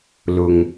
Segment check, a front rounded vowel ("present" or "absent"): absent